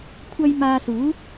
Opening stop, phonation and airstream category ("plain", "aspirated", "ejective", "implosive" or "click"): aspirated